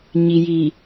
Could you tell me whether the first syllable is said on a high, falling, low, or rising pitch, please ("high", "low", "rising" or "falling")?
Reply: low